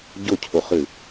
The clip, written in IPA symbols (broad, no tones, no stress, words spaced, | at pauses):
ɟʊcʰʊχɨ